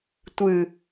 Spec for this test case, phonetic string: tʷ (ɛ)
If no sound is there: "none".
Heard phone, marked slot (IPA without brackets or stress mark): ɨ